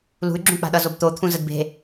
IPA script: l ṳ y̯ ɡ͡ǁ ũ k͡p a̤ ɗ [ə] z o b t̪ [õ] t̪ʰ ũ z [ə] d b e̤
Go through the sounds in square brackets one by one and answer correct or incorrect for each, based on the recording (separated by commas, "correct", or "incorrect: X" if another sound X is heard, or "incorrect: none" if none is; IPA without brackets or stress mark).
incorrect: ʌ, incorrect: o, correct